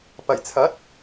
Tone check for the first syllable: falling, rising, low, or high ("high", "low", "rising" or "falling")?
low